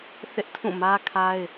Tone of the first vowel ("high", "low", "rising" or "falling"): high